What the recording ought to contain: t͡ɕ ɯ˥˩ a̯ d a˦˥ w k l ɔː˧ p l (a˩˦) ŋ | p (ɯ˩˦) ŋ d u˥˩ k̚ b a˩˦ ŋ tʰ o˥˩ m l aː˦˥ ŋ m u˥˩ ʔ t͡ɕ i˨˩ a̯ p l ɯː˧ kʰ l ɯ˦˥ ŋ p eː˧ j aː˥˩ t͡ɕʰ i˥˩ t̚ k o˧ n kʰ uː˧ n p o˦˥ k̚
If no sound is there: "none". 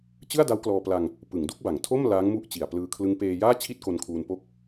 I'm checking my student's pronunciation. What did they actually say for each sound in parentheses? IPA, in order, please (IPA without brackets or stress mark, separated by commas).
a˧, ɯ˩˦